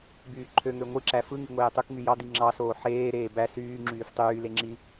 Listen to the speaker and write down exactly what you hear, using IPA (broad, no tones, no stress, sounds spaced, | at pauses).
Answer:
b yː ǃʰ ø ŋ ø ŋʷ ɯ ǁ æ f ɯ ŋ i ŋʷ eː tˤ u k ŋ y j ɑ d̪ i ŋ͡ǁ ɑ s oː ħ eː ɾ eː b æ s yː ŋ͡ǁ yː f tˤ yː l e ŋ͡ǁ i